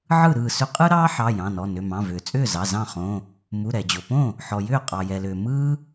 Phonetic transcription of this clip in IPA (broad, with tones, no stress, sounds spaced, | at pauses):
ʕ ɯ˥˩ ɾ ɯː˥˩ s ʏ˥ qʼ ɯ˥ ɾ ɑː˥ ħ ɑ˩˧˩ j ɑ̃˩˧˩ n ɔ˩˧˩ n ʏ˩˧˩ m ɑ̃˩˧˩ v ʏː˩ t͡sʼ ʏː˥˩ z ɑ˩˧˩ z ɑ̃˥˩ χ õ˩˧˩ | m u˩˧˩ ɾ ɛ˩ d͡ʑ o˩ p õ˥˩ | ħ ɔ˩ j ʏː˥˩ qʼ ɑ˩ j ɛ˩ l ʏː˩ m ɯː˥